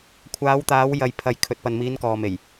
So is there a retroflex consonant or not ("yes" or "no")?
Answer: no